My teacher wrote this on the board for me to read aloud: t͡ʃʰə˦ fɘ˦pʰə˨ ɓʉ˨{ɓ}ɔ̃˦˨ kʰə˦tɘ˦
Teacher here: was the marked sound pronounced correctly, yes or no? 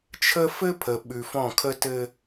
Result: no